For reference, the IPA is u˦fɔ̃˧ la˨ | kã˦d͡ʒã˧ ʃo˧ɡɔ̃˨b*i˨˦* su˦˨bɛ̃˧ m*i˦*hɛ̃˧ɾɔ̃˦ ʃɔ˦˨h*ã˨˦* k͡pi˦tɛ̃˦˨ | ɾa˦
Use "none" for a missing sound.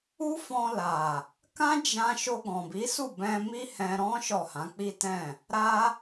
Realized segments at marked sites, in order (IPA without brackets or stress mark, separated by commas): i˨˦, i˦, ã˨˦